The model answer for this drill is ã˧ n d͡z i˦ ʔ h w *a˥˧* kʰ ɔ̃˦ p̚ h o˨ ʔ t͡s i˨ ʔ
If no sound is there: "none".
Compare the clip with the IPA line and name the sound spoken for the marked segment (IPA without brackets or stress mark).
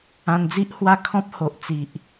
a˥˧